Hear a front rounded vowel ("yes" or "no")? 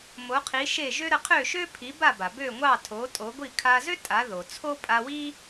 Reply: yes